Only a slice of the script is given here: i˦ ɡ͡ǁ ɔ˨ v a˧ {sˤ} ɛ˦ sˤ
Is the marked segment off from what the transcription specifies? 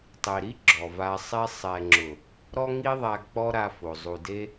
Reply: no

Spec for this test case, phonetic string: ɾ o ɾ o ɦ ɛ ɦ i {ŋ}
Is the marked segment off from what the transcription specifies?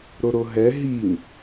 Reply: no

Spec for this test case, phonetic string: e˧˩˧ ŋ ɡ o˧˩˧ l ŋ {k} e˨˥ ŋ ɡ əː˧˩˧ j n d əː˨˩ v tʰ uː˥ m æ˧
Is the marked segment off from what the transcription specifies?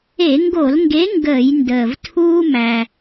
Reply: yes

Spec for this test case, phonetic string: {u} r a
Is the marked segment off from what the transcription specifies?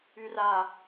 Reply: yes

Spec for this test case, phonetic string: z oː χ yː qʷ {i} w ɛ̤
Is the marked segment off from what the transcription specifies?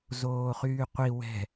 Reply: no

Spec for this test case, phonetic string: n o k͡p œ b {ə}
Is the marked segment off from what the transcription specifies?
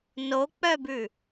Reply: yes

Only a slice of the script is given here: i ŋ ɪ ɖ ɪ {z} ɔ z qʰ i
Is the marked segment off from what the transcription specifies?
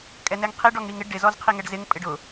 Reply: no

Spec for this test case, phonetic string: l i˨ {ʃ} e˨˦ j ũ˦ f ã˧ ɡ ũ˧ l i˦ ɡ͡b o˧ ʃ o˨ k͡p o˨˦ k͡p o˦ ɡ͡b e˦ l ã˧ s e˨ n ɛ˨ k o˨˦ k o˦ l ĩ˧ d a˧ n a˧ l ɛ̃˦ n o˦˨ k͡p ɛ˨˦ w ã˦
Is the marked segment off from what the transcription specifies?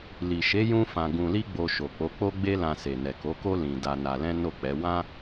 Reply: no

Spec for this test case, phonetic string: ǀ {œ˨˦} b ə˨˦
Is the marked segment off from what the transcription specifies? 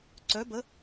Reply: no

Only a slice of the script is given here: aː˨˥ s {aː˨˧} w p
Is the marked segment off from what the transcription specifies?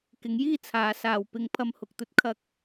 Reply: no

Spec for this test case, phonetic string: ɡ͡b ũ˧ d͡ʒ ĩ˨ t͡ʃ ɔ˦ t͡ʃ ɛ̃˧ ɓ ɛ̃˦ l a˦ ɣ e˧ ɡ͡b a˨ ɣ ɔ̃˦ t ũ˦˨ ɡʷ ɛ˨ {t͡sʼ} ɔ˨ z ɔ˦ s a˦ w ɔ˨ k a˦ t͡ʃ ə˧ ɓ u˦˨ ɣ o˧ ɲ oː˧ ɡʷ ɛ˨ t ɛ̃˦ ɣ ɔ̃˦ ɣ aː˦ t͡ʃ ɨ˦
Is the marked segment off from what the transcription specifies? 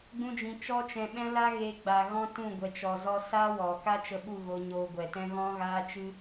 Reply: yes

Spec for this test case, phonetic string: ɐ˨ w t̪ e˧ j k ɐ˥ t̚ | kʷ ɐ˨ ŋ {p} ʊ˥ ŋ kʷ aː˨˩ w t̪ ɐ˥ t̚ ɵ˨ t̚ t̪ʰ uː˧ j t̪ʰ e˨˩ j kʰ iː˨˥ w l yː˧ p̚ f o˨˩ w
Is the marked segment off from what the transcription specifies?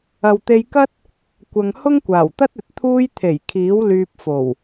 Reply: yes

